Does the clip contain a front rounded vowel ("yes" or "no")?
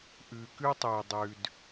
yes